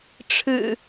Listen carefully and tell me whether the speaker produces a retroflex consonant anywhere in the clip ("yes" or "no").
yes